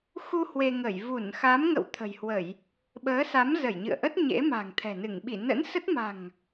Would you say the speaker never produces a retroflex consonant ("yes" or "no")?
yes